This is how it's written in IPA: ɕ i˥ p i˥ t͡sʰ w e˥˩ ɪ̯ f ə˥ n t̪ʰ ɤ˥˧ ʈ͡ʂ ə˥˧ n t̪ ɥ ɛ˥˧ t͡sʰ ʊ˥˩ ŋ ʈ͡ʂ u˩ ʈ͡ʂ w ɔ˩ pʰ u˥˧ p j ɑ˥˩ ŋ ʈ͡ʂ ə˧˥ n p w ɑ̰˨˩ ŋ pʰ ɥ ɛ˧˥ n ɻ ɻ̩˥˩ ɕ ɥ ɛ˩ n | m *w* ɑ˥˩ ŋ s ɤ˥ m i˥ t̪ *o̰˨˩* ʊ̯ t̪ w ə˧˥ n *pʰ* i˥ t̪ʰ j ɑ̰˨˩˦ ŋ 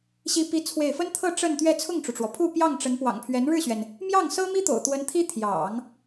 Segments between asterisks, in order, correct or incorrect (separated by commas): incorrect, correct, incorrect